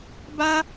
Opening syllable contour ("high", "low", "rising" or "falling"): high